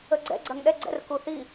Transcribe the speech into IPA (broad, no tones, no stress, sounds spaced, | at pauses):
ə ɡ͡ǀ ɛ̰ ɡ͡ǀ ɐ ŋ ɗ ɛ ɡ͡ǀ ɛ̰ r k u θ i